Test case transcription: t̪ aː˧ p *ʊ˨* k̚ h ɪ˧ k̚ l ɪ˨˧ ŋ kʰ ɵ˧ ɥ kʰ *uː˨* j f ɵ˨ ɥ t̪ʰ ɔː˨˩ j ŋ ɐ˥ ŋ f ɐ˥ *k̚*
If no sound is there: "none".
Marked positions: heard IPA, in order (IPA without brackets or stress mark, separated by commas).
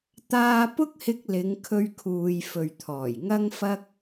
ʊ˥, uː˨, k̚